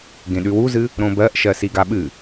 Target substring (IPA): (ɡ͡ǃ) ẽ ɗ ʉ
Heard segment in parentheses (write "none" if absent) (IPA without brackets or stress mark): ɡ